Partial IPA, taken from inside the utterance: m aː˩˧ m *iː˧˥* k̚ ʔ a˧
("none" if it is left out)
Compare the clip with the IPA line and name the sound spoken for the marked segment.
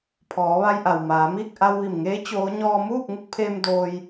iː˥˨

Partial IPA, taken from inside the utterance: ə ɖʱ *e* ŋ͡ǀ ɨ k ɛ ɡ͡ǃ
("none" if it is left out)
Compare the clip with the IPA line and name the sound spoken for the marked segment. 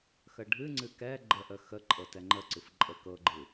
ɨ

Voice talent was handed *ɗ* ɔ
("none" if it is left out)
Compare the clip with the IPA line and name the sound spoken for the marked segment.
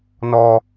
n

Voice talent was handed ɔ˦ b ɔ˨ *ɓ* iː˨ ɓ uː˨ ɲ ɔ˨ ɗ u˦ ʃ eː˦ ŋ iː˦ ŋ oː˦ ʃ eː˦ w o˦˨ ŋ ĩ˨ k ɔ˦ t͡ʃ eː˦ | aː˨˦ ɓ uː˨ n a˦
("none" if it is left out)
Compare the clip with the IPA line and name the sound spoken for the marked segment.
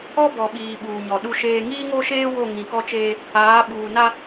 ɓ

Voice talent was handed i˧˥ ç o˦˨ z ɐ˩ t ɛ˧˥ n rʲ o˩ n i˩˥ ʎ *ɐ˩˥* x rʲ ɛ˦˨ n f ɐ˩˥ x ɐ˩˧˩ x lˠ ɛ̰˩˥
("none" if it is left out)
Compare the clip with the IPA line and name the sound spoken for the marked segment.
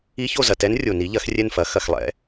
ɐ˩˥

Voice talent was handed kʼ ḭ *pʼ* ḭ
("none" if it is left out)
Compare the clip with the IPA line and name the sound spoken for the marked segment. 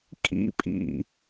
pʼ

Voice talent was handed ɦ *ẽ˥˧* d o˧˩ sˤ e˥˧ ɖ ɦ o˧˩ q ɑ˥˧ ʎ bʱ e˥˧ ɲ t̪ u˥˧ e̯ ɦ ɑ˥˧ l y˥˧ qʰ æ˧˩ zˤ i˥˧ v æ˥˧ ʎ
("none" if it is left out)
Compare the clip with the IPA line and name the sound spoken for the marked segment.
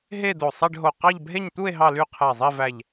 e˥˧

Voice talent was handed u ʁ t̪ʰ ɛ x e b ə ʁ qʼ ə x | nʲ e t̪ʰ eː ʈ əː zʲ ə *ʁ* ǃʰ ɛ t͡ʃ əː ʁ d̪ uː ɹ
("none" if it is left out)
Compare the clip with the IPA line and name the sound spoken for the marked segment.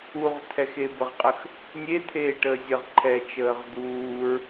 ʁ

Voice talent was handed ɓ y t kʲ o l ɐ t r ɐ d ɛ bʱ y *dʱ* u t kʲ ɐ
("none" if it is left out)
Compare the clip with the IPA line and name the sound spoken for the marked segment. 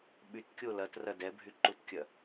ǃ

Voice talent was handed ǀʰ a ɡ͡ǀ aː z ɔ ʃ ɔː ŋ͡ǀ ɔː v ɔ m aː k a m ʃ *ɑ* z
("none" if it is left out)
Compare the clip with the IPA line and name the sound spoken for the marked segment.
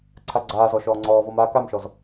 ɔ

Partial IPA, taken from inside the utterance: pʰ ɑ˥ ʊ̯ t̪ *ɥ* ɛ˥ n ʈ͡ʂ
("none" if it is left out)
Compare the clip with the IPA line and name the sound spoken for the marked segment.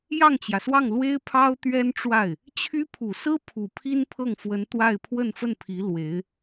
ɥ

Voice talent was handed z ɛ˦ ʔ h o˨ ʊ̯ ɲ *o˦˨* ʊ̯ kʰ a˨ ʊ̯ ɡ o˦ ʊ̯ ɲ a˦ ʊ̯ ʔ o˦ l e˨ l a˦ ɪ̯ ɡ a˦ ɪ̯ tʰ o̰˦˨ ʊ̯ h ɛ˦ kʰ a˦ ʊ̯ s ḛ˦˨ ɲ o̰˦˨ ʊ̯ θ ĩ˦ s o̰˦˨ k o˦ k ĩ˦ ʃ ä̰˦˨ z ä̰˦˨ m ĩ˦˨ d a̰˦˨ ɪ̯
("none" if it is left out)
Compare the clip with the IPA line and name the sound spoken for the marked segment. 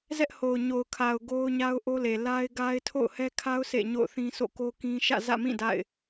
o˨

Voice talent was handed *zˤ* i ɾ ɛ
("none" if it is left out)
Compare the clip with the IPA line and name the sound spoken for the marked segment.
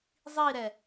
zˤ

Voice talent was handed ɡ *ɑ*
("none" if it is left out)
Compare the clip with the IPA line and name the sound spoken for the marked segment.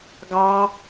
ɑ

